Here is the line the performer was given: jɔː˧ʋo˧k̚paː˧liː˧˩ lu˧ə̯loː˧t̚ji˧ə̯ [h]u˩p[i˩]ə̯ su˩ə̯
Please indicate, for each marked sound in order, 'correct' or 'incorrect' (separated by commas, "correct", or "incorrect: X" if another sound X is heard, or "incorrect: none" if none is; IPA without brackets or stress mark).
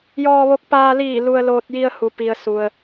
correct, correct